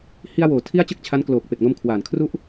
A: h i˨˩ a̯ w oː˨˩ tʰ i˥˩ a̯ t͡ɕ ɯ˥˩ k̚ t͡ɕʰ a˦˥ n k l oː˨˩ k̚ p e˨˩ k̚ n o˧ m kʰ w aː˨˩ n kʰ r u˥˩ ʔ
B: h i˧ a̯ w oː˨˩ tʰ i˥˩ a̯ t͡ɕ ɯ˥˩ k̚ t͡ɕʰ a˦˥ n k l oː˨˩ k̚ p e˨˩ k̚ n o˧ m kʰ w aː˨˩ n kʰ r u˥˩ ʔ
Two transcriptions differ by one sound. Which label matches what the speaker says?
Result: B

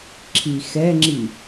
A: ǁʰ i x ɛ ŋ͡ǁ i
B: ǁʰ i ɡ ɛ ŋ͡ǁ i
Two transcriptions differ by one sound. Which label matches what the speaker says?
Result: A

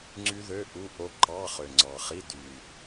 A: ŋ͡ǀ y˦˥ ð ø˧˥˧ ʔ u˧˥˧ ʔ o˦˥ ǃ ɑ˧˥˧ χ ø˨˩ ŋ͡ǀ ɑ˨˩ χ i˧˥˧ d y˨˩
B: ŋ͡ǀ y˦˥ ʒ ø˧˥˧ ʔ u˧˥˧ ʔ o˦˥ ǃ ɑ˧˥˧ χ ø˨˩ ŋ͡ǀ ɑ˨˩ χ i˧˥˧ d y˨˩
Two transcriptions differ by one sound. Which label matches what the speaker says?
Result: A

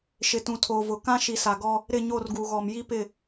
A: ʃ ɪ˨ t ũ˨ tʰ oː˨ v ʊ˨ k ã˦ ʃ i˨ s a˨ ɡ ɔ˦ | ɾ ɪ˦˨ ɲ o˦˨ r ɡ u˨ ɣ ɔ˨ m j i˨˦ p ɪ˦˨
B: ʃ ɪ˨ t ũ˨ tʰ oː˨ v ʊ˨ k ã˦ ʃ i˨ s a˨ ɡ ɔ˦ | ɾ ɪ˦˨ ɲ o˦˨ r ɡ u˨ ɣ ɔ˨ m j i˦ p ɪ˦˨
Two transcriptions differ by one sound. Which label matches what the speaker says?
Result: B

